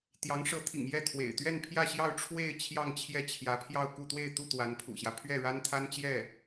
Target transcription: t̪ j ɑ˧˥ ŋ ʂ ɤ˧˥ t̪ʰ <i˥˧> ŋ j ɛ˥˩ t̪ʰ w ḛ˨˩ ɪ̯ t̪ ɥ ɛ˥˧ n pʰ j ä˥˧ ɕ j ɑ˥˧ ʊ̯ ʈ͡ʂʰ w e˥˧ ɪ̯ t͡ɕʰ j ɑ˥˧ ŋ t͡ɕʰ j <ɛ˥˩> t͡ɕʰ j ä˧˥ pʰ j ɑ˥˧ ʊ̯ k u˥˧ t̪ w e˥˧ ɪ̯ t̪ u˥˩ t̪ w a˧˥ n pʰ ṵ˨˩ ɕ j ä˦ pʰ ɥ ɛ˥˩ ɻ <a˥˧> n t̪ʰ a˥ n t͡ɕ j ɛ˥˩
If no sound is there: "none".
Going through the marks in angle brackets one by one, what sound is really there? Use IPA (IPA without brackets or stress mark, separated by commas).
ḭ˨˩, ɛ˥˩, a˥